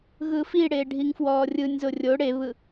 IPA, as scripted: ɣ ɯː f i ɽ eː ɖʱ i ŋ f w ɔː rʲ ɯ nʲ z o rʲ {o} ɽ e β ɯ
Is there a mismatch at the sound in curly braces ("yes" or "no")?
no